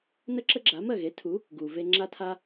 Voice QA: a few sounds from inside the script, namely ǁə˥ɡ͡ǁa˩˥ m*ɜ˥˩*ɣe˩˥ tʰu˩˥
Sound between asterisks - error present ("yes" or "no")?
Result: no